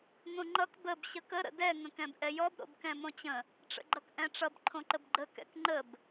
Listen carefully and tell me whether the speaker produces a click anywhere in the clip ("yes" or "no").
yes